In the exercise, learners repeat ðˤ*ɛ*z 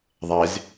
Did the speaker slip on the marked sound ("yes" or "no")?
no